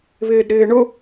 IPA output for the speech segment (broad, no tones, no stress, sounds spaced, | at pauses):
β ɪː d ɾ ɪː ɳ ʊ